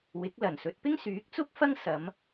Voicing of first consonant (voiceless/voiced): voiced